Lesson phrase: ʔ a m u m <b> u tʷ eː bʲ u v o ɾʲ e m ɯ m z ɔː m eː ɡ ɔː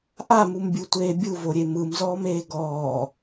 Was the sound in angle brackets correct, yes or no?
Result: no